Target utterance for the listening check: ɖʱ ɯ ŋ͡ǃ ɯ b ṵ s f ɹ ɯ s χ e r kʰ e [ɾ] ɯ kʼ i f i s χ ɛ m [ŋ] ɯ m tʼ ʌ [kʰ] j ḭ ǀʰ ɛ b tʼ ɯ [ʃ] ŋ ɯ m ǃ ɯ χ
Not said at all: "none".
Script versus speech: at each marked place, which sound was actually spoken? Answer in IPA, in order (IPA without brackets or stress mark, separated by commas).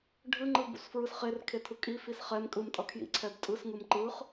tʰ, kʼ, kʰ, s